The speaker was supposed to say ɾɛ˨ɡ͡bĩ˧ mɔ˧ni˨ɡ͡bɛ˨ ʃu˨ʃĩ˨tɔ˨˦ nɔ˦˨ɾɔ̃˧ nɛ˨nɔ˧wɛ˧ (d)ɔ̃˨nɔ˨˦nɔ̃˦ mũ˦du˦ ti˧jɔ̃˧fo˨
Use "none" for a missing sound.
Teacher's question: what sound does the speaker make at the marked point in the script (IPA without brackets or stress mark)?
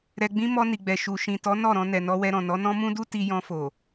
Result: ɾ